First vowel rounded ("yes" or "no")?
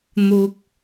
yes